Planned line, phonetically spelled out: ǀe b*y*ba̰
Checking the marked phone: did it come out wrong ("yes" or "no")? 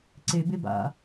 yes